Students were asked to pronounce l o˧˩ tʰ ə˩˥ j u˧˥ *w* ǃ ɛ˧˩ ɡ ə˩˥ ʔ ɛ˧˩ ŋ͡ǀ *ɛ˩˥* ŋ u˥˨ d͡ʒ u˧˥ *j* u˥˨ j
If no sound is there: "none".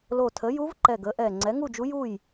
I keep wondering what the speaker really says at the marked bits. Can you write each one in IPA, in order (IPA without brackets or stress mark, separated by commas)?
v, ɛ˩˥, j